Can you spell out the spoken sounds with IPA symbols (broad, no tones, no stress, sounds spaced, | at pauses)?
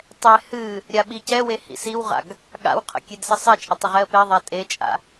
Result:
tˤ ɛ h ɨ | ɾʲ a ɓ i c ɛ w e h ḭ s i w ʁ a̰ ɡ | ɠ a̰ w qʰ ə̰ kʲ e d s ə sˤ ɛ t͡ʃʼ ə tˤ ə ʁ ɛ ə̯ p e ðˤ a tʼ e t͡ʃʼ a̰